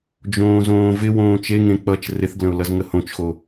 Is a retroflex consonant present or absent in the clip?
absent